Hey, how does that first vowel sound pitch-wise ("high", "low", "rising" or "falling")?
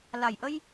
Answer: low